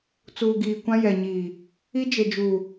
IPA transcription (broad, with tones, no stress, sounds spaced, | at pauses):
t͡s uː˨ ɡ iː˨ kʷ ã˦ j ɛ˨ ɲ iː˨ | i˦ d͡ʒ e˨ d͡ʒ uː˨